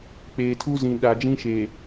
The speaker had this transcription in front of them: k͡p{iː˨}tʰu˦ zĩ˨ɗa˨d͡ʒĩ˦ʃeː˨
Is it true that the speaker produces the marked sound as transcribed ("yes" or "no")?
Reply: no